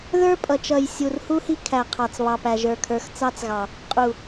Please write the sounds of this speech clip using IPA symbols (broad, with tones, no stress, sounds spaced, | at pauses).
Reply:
ð ə˞˦ pʼ ʌ˨ t͡ʃ ʌ˨ j sʲ u˨ r h u˦ h i˦ kʰ æ˨ qʰ ɑ˨ t͡s β ɑ˨ p æ˨ ʒ ə˞˨ kʰ ə˞˨˦ x t͡s ɑ˦ t͡s ɣ ɑ˨ | qʼ u˨